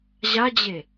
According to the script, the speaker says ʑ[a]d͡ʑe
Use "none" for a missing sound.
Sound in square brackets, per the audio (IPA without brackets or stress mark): a